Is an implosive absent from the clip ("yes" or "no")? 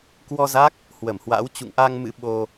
no